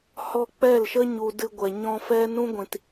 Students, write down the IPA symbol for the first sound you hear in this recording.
h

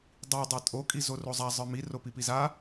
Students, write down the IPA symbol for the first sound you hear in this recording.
dˤ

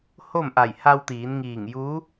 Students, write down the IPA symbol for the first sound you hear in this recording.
h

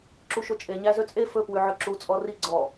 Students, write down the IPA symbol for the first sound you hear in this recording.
ǁ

